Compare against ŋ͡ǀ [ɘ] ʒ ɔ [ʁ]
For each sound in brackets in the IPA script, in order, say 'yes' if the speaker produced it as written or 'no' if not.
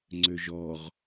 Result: no, yes

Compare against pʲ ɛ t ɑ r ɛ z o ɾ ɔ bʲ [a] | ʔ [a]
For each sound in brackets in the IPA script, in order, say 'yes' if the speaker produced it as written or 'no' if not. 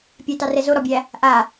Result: no, yes

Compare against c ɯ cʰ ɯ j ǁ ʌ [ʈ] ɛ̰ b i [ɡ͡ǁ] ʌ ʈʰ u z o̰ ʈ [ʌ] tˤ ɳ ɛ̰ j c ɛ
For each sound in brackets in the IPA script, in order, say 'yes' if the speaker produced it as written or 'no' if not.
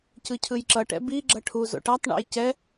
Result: yes, yes, no

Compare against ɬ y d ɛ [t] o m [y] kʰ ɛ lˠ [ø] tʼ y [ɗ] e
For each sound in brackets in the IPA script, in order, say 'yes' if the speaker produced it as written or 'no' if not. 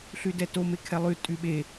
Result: yes, no, no, no

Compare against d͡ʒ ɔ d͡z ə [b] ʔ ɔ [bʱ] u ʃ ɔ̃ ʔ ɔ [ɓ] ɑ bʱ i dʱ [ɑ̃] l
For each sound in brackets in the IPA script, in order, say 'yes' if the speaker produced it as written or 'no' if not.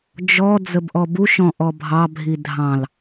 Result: yes, no, no, yes

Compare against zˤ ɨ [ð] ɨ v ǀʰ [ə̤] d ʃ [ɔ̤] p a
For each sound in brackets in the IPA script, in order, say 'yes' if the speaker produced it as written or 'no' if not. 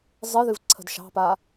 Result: yes, yes, no

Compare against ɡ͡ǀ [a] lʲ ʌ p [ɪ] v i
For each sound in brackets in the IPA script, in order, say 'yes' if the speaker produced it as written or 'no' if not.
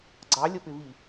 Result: no, yes

